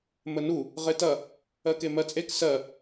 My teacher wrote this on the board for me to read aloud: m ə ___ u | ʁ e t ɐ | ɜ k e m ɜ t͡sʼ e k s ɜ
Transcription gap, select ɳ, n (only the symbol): n